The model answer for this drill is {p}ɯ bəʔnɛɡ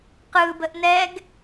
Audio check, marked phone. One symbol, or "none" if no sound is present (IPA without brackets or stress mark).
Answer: q